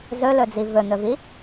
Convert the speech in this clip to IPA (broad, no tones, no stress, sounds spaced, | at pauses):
z ɵ l ɵ d͡z i v ɵ n̪ ɵ v i